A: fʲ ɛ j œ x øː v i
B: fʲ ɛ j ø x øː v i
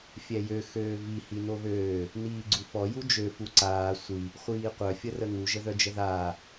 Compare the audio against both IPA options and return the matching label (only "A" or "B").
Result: B